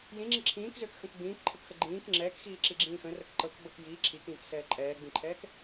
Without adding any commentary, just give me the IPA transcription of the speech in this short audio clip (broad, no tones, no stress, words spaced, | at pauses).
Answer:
jĩŋ͡ǁi ǁʰĩːkzøkxə̃k ɡ͡bĩːkǃʰəkxə ɡ͡ǃĩːk ŋ͡ǁɛːkxiːǁiɡ͡ǁĩː xə̃rək ǃɤkɡ͡bɤk jiː ǁʰikĩːksɛː ǃʼɛːɡ͡bĩǃʰɛːk